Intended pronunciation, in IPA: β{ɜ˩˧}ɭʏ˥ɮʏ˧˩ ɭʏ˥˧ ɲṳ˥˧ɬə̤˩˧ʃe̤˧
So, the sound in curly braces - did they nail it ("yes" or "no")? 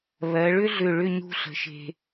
yes